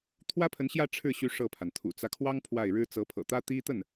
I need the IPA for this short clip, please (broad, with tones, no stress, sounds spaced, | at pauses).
t̪ʰ w ä˥ pʰ ə˧˥ n ɕ j ä˥˧ ʈ͡ʂʰ ɻ̩˥˩ ɕ y˧˥ ʂ ɤ˥˩ pʰ a˩ n t̪ʰ ṵ˨˩ t͡s ä˦ kʰ w ɑ˥ ŋ pʰ w a˥˩ ɪ̯ ɻ ɻ̩˥ t͡s ɤ˧˥ pʰ ɤ̰˨˩ t̪ ä˥ t̪ i˥ t̪ ə˥˩ n